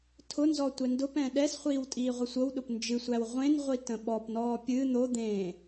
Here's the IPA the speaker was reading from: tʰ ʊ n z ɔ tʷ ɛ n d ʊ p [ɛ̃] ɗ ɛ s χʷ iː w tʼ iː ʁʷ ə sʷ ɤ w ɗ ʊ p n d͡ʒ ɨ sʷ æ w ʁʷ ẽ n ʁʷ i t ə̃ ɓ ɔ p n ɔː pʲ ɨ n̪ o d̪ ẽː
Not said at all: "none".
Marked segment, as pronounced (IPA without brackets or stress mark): ɛ̃